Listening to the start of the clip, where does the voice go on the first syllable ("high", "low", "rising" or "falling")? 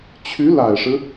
rising